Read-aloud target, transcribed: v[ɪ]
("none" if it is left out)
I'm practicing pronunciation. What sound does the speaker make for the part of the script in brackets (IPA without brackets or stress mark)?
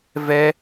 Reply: ɛ